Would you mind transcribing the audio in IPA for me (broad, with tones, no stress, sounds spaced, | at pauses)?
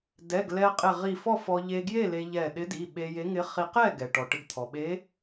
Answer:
d ɛ˩˧˩ ɡ l ɛ˧ qʼ ɪ˧˩ ʁ i˧˩ f ɔ˥˨ f ɔ˧ ʎ e˧ ɡ j e˥˨ l e˧ ʎ ɛ˧˩ ɗ ɪ˧˥ d i˩˧˩ ɓ e˧ j e˧˥ ŋ ɪ˧˥ χ i˧ q ɛ˥˨ ɡ ɛ˩ ʈ ɔ˩ ʈ ɪ˧ ɡ t̪ʰ ɔ˩ ɓ e˧˥